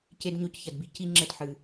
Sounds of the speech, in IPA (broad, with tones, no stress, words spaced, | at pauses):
ce˧dɲo˧cçɐ˨dbi˨ ci˧ŋ͡ǁɘ˧dħɨ˨